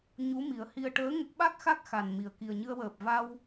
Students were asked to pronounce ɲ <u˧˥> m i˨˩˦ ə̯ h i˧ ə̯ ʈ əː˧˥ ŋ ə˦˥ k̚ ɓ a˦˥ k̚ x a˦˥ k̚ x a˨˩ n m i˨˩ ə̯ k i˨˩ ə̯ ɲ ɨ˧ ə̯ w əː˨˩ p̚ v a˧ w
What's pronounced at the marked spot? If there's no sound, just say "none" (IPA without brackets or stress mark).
u˧˥